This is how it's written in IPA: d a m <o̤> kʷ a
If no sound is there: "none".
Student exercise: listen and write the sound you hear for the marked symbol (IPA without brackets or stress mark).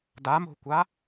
o̤